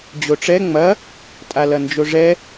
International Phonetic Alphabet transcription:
d͡ʑoʈ͡ʂɛ ŋ͡mɐ | tʼalɐnd͡ʒoʐɛ

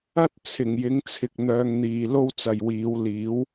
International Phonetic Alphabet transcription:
ɐ˥t̚ t͡sʰɪ˨˩ŋjɪ˨˥ŋt͡sʰɪ˨k̚ n̪œː˧ŋn̪iː˨ lo˥wt͡sɐ˨jwiː˨˥w liː˨˥w

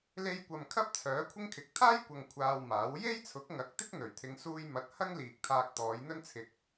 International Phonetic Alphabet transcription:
le˧jkʷɐ˨m kʰɐ˥p̚t͡sʰœː˨˥kʷʰɪ˥ŋkʰɪ˨˥k̚ t̪ʰaː˥j kʷɐ˧ŋkʷʰaː˧wmaː˨˥w je˥jt͡sʰʊ˨˥k̚ŋɐ˨˥k̚ t̪ɪ˥k̚n̪ɵ˨˩ɥt̪ʰɪ˨˧ŋ suː˧jmɐ˨˥t̚ hɐ˥ŋliː˨k̚t̪ʰaː˧k̚ t̪ɔː˨˧jn̪ɵ˥nt͡sʰɪ˧k̚

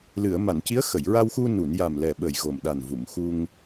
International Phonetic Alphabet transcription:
lɨ˨˩˨ə̯ma˨˩˨nci˧˥ə̯ xə˨˩˨jɹa˧wxu˧ nu˨˩˨n ja˨˩mlɛ˨˩ɓə˨˩j ɣo˨˩mɗa˨˩n vu˨˩˨m xu˧ŋ

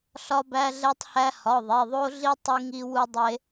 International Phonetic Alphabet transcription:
ɬɒ˦bæ˦ɮɛ˦tˤhæ˦ hɒ˩˧˩ðˤe˩˧˩ðˤo˦ɮi˦ tˤi˦ŋi˦wu˦ dˤe˦

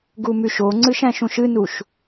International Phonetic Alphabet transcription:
ɡumyʃoŋ͡ǀɨʃ æ̃ʃũʃɨnuʃ

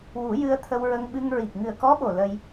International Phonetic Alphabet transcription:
wu˨˩˦ jɨ˧ə̯t̪ʰə˧wɹə˧ŋɓɨ˧ŋ ɹi˨˩k̚ŋɨ˨˩ə̯kɔ˧˥ɓo˨˩ lə˧j

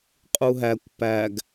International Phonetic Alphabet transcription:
qʼuɦækʷ pæɡ

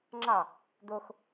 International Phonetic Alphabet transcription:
ŋ͡ǁɑ | d̪ox

